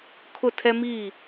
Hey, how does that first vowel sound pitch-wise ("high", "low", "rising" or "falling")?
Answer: falling